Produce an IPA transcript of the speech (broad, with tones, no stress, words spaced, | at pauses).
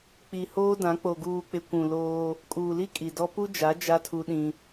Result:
k͡pi˨ hoː˦dã˨˦ k͡po˨ɡuː˨k͡pɪ˨ kʷũ˨ loː˦ | kʼuː˨li˦ kʼi˨dɔ˦ pu˦d͡ʒa˨˦ d͡ʒa˦tʰu˦ɗĩ˦